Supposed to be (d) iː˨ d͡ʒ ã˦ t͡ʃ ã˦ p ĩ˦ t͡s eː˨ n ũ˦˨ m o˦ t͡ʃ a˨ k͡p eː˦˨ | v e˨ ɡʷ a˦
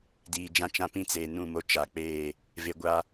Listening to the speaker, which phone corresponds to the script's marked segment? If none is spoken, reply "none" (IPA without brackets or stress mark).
d